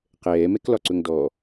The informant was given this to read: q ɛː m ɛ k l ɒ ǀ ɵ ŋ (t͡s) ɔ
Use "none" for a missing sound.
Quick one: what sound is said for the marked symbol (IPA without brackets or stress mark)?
d